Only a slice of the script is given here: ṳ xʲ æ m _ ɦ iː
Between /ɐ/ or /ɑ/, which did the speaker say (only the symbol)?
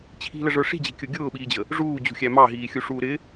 ɑ